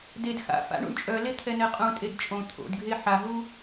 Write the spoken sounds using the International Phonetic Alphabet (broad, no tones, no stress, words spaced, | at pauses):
ded xa̰ fa̰ɳṵɳt͡ʃʼœle t̪ʰɛnɛqʼũtʼed t͡ʃʼõ t̪ʰo̰dɡʱe ħaɦu